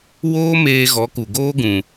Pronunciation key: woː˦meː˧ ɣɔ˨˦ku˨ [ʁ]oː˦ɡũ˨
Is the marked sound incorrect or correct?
incorrect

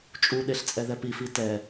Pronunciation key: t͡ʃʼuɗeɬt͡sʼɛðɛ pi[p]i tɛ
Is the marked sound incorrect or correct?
incorrect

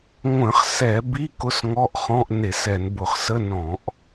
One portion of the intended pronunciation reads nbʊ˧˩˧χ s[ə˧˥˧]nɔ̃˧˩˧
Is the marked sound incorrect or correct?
correct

